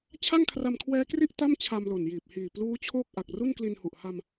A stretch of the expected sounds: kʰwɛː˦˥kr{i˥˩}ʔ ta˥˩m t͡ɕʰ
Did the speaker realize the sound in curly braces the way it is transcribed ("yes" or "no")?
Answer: yes